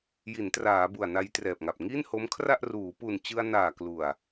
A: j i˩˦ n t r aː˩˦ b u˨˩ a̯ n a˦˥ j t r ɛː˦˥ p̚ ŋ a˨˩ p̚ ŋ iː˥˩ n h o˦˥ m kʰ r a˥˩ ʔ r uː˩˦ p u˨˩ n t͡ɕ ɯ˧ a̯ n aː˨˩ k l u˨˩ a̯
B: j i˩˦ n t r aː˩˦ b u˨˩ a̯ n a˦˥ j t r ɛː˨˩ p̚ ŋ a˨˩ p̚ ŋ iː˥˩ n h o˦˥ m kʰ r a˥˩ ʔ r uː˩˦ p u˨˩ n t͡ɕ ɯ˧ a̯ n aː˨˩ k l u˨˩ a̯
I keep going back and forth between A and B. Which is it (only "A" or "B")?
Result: B